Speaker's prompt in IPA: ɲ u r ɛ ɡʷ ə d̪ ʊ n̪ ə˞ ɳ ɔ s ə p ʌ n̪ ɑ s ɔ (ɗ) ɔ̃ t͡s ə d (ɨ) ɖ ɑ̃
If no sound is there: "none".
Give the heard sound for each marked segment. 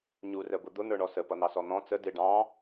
n̪, ɪ

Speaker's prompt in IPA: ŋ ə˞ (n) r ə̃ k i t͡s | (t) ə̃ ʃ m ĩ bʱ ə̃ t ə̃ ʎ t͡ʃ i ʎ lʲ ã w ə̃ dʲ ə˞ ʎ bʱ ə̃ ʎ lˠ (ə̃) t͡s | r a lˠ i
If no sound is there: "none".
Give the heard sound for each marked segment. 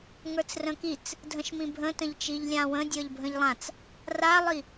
t͡s, dʱ, ã

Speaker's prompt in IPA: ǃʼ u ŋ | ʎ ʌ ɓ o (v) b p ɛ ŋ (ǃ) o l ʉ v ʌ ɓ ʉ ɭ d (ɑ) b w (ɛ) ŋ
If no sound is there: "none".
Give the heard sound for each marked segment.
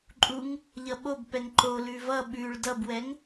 none, ǃ, ʌ, ɛ

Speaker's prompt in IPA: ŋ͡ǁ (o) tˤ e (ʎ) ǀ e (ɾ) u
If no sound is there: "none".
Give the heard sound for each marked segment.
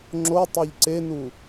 o, ʎ, n

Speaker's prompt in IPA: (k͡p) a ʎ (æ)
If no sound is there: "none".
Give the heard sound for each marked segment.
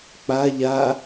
k͡p, a

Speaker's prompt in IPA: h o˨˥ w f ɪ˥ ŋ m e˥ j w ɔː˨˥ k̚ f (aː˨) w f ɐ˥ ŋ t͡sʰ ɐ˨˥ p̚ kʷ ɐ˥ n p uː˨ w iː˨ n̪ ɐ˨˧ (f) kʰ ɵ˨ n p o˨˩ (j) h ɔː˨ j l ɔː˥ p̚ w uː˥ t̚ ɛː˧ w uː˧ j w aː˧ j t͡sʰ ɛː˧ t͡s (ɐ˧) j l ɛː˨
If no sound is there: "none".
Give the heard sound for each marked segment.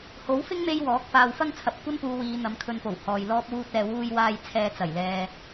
aː˨, m, w, ɐ˨˩

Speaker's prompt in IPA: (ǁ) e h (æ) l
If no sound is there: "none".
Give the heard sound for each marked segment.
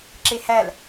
ǁ, æ

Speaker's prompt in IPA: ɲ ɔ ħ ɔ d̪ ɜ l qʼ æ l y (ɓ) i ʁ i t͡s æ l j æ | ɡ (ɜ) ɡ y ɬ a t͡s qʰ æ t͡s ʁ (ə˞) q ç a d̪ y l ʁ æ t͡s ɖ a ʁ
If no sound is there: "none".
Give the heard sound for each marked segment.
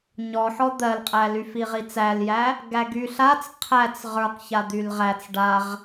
f, æ, ə˞

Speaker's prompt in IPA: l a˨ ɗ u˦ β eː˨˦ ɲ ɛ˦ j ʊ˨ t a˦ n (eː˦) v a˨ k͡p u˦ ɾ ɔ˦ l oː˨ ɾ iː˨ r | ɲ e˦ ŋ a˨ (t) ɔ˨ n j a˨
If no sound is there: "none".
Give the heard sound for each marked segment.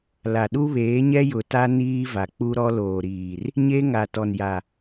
iː˦, t

